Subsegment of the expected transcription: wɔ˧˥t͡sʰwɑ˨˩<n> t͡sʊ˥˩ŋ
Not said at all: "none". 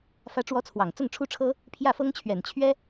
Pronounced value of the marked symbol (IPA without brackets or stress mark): ŋ